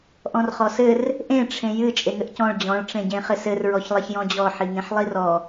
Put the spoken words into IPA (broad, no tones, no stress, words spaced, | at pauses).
ʔɔ̃rχɔsɘr | ʔẽ ʈ͡ʂʰẽjɨ t͡ʃʼeŋɘʔcɔ̃ɭ d͡ʑɔ̃ɭ ʈ͡ʂẽɟẽχɘsɘr ɹɔçlˠeçjɔ̃d͡ʑɔ ħiŋẽħlˠirɔ